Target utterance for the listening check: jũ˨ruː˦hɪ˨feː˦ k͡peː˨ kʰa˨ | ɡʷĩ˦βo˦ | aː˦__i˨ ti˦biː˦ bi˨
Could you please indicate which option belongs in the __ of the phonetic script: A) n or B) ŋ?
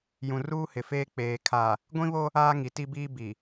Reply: B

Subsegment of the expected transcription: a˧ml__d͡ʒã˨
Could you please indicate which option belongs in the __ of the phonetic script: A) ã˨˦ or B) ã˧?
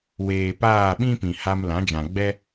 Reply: A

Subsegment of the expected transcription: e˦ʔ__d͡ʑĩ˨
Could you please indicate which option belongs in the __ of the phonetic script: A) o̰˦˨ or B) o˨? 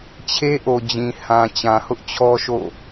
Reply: B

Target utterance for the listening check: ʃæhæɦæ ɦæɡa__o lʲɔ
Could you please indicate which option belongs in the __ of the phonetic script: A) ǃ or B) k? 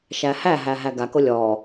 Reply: B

